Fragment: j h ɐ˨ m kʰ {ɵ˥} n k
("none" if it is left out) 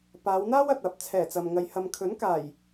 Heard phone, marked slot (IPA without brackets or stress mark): ɵ˨˥